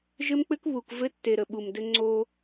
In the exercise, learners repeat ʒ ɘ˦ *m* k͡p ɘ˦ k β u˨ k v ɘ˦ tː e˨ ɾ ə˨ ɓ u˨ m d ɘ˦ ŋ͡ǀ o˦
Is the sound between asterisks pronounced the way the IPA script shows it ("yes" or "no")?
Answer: yes